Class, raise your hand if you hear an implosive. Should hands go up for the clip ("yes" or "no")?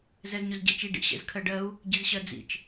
no